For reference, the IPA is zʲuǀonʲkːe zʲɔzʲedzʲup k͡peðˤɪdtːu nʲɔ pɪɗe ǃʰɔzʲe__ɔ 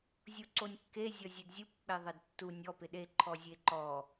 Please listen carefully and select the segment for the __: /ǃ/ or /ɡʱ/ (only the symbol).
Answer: ǃ